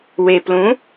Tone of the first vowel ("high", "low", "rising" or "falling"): low